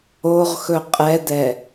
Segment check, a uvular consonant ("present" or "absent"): present